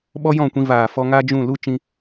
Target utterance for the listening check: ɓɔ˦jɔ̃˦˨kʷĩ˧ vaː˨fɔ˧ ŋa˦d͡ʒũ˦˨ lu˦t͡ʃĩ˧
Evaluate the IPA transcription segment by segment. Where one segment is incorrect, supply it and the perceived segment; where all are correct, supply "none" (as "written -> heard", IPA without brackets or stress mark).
none